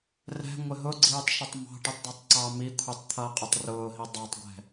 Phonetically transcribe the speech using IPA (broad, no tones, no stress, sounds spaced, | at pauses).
r ɛ̤ ŋʷ ɪ ɦ ʊ ɡ͡ǀ iː tˤ ʃ ʊ tˤ m ɑ̤ ʈ i tˤ d ɒ tˤ ǀ ɑ m i kʷʰ i tˤ t̪ʰ ʌː qʼ ʌ tˤ r ʊː ɦ i dˤ ɑ tˤ ɡʷ ɛ̤